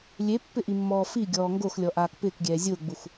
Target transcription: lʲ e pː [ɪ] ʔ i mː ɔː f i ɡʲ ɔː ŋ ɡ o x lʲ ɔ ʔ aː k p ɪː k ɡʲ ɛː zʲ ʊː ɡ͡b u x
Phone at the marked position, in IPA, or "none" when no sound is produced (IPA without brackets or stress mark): ɪ